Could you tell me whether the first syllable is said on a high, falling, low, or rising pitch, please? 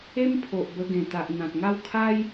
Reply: high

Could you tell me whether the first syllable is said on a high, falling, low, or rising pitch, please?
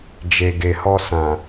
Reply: low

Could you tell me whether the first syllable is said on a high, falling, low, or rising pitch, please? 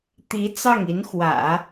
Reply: rising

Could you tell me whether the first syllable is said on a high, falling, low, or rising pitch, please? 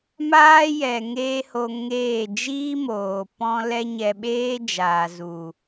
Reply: high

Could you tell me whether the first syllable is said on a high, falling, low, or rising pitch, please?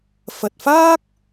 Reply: low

